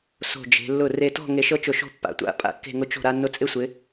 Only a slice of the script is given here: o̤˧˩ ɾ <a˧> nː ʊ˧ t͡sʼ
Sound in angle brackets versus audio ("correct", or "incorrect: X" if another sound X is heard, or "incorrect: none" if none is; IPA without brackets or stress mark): correct